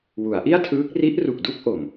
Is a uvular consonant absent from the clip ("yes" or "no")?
yes